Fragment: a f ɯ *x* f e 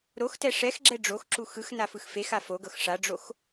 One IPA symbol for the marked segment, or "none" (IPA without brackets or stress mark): x